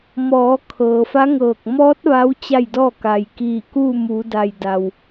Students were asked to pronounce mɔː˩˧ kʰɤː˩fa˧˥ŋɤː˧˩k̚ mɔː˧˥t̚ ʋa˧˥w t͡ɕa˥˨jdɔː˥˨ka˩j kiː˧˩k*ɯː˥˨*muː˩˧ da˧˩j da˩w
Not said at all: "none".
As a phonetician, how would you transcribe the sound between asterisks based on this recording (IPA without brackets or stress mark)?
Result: uː˥˨